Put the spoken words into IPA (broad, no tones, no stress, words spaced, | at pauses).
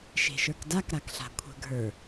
ʃe̤ʃə˞kdak ɾakɬa̤kʷʰə̤ ɡʱə˞